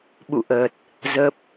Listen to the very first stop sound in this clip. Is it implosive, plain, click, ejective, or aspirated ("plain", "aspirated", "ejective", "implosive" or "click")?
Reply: implosive